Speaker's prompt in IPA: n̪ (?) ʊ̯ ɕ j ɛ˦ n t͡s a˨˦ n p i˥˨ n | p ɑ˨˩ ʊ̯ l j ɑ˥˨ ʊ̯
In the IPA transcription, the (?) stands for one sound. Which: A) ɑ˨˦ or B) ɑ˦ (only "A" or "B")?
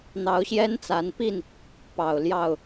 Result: A